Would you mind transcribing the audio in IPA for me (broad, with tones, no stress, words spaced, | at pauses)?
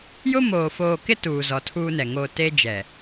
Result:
jʊ˦ moː˨ foː˨kɪ˦ tuː˨zɔ˨ tʰuː˦nɛ˨ ŋo˨ te˦d͡ʒɛ˨